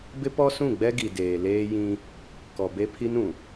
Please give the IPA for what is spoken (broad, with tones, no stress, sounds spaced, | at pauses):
b ɪ˦ p ɔ˦ s ũ˦˨ ɡ͡b ɛ˦ ɡ i˨ d eː˨ l eː˦ j ĩ˦ | k ɔ˨ b e˦ pʰ i˦ n ũ˨